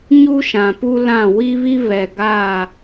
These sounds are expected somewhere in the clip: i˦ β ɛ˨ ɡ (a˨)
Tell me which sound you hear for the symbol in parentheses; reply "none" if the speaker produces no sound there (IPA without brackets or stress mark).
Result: a˦˨